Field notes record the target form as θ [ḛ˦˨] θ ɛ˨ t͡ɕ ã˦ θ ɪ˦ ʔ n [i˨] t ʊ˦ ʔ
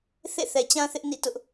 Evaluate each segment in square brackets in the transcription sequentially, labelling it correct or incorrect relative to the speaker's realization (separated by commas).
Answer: correct, incorrect